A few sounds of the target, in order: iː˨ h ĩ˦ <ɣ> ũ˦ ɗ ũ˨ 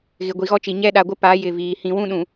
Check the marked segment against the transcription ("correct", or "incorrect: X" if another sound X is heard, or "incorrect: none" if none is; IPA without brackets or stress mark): incorrect: w